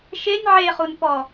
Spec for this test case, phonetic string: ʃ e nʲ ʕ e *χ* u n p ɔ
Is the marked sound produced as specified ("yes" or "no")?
yes